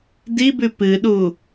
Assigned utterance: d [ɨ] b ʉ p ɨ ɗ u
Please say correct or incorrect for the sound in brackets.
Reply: incorrect